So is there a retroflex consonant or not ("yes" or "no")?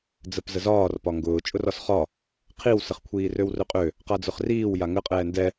no